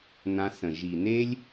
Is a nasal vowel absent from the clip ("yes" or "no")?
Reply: no